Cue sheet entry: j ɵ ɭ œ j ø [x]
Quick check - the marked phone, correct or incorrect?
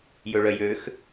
correct